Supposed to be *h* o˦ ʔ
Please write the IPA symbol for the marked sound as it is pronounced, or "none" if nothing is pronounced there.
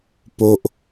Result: p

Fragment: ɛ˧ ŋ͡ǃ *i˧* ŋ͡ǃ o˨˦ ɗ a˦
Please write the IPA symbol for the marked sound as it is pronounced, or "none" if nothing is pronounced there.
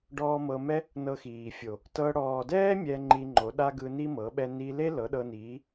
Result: i˧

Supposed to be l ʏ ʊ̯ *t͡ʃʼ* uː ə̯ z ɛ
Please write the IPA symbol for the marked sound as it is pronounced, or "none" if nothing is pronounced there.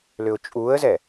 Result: t͡ʃʼ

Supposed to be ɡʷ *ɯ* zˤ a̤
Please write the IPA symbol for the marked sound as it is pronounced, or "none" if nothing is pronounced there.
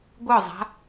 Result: ɯ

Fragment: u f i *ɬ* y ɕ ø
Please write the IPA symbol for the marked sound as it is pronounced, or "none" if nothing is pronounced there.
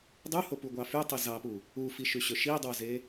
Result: ʃ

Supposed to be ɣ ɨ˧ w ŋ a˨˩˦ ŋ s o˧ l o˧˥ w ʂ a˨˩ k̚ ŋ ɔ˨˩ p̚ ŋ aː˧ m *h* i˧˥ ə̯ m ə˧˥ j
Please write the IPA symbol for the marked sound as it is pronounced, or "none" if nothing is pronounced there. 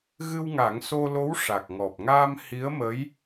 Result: h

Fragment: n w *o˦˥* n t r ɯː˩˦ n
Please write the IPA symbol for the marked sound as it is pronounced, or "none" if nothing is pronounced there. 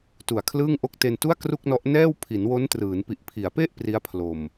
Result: o˦˥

